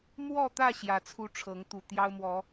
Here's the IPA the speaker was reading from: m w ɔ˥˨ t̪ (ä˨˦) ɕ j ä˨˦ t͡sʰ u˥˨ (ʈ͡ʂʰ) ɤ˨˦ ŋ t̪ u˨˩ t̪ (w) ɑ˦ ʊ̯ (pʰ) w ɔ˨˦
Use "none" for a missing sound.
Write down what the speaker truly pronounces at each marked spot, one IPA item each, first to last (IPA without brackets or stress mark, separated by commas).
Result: ä˥˨, ʈ͡ʂʰ, j, m